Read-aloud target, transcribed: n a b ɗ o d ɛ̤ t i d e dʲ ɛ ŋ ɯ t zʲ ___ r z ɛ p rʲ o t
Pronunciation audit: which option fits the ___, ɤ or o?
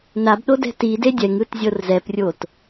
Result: ɤ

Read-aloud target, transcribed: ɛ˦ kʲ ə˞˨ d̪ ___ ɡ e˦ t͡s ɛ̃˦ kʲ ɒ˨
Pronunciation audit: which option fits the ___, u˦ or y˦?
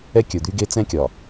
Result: y˦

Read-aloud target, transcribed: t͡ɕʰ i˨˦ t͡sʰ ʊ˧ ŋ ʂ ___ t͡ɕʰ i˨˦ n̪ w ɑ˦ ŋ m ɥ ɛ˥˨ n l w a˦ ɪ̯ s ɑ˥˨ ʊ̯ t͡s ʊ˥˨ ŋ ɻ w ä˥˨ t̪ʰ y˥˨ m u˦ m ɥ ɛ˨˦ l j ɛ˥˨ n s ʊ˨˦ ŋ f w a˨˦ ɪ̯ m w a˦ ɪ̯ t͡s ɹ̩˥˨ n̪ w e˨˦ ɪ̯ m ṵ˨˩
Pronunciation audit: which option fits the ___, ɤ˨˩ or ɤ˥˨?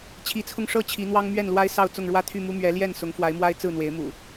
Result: ɤ˥˨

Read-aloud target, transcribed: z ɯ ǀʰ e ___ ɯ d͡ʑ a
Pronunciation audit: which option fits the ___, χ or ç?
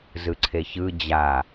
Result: ç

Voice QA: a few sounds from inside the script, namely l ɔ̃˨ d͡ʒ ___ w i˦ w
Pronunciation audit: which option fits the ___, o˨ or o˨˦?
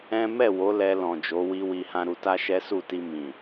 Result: o˨˦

